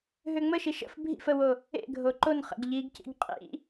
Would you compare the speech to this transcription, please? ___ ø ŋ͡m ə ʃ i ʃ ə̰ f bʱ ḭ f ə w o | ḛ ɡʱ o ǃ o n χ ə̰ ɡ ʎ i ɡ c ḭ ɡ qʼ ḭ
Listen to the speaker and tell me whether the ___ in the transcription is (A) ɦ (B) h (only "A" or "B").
A